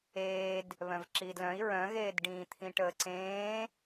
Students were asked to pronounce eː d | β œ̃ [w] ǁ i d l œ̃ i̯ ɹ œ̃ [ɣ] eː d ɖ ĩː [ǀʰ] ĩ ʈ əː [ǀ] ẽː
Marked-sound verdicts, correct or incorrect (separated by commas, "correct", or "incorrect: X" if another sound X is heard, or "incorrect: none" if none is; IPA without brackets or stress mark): incorrect: v, correct, incorrect: t̪ʰ, correct